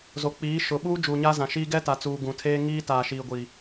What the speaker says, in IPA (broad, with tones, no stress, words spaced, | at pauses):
zo˨k͡piː˨˦ ʃʊ˨ɓuː˦ d͡ʒuː˨ɲa˦zã˨ʃiː˦ ɡɛ˦ta˨t͡suː˨ ɡũ˨tʰeː˦ ŋiː˦ taː˨ʃiː˨ɡʷi˨